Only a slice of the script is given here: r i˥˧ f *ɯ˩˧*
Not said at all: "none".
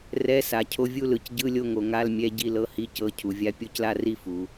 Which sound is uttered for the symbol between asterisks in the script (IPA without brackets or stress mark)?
u˩˧